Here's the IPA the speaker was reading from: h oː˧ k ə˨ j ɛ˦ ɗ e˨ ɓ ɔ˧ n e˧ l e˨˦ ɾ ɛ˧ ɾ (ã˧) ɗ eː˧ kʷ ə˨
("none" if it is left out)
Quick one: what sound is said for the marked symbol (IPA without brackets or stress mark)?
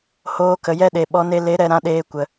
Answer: ã˧